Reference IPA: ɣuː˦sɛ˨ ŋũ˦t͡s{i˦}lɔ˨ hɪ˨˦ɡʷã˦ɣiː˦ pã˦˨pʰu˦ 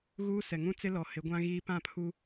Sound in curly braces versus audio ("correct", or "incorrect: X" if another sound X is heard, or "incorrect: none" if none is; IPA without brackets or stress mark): incorrect: ɪ˦